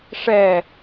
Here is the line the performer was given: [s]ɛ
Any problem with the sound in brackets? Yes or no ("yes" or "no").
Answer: yes